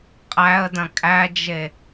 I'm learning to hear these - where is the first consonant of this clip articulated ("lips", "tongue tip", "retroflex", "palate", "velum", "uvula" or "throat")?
uvula